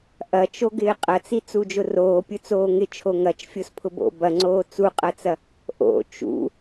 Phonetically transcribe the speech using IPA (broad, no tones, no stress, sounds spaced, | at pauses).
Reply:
ʔ ɐ t͡ʃ o ɡ ɪː qʼ ɐ t͡s i t͡s u d͡ʒ ʊ r oː pʲ ʊ t͡s oː ŋ ɪ t͡ʃʰ o ŋ ɐ t͡ʃ fʲ o s pʰ ʊ b o̰ b ɐ ŋ͡ǀ oː t͡s u qʼ ɐ t͡s ɐ | ʔ o̰ t͡ʃ ṵ